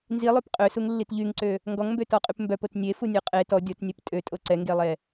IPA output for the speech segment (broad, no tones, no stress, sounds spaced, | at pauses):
n z i lˠ ø p qʼ ø s u ŋ lː i t ʎ y ŋ ǀ ø | ŋ ɡ ɔ ŋ m b ø t ɔ qʼ y p m b œ p o t nʲ e f u nʲ o qʼ e t ɔ dʲ ɔ t nʲ ɛ p tʼ ø tʼ o ǀ ɛ ŋ ɡ e lˠ ɛ